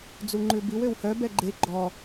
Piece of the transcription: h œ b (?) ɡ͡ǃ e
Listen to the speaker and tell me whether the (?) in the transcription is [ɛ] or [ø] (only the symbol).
ɛ